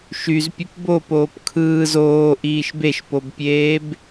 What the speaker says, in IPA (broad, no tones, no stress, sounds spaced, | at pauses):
ʃ y z pʲ u p b o p oː p kʰ ɯː z oː ʔ iː ʃ b e ʃ p o b pʲ eː b